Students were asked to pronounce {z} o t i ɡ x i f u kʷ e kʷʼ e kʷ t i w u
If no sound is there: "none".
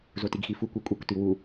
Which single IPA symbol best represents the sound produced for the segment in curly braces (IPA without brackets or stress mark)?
z